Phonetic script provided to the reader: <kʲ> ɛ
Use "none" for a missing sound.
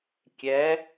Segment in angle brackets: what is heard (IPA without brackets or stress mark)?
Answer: kʲ